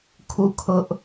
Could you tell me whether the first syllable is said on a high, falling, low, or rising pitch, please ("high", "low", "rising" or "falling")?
falling